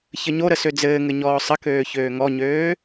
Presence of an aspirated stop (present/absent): absent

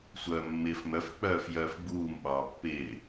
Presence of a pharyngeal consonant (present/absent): absent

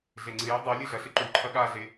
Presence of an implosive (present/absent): present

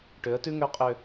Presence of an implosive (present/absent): absent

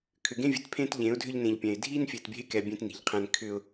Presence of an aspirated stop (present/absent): present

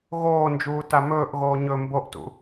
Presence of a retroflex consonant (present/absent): absent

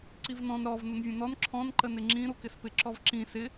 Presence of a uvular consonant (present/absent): absent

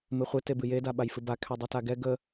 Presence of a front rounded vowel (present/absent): absent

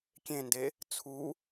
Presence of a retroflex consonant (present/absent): absent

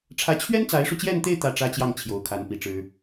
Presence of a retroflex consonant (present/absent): present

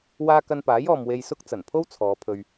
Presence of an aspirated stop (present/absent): present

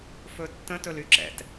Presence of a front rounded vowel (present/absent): present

